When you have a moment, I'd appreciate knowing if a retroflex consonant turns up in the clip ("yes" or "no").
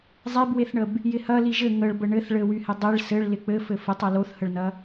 yes